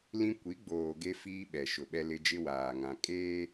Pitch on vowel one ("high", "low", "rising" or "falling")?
high